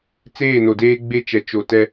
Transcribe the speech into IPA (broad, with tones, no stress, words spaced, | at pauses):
t͡seː˦˨no˨deː˦ ɡ͡be˦t͡ʃɛ˨ t͡ʃo˨tɛ˦